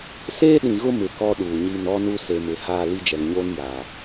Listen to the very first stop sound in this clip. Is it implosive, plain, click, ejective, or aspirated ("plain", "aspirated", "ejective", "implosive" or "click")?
implosive